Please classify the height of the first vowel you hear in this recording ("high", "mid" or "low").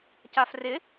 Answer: low